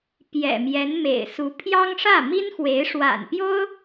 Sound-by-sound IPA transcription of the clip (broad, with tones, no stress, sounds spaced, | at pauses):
p j ɛ̰˨˩ m j ɛ˧˥ n m ḛ˨˩ ɪ̯ s u˧˥ pʰ j ɑ˥ ŋ ʂ ä˥˩ m i˥ n x w e˧˥ ɪ̯ ʂ w a̰˨˩ n p j o˥ ʊ̯